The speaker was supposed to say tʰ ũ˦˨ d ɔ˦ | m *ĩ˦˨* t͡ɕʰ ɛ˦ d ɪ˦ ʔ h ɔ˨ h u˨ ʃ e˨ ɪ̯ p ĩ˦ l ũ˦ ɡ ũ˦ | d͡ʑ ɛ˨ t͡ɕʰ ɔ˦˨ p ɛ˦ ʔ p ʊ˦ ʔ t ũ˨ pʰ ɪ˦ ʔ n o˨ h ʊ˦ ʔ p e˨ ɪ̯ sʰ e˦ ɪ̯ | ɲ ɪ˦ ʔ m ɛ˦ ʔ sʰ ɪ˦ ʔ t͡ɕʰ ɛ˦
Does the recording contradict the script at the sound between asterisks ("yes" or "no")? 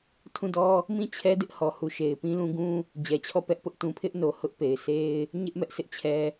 no